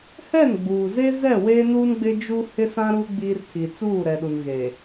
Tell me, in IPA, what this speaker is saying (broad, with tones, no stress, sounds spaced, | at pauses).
h ɛ˦˨ n ɡ͡b uː˨ z e˦ z ɛ˦˨ w eː˦ n uː˦ n ɡ͡b ɪ˦ d͡ʒ u˦ h ɪ˦ s ã˦ ɾ u˦ ɡ͡b i˦ r tʰ i˨ t͡s uː˦˨ ɾ ɛ˨ ɗ u˨ n ɣ eː˨